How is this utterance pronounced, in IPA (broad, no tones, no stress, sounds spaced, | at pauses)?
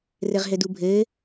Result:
r ɘ ʁ ɦ ɘ d u bʱ ɘː